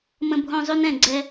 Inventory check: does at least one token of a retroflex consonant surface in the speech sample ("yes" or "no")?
no